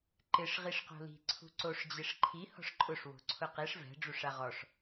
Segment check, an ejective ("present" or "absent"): present